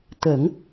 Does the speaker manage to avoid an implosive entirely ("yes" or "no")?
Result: yes